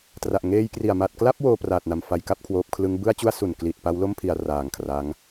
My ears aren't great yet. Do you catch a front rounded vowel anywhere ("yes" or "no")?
no